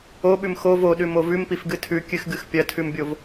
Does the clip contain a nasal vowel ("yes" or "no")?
no